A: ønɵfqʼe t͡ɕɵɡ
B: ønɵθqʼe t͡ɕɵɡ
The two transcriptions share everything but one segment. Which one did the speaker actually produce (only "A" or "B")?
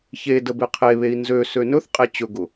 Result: B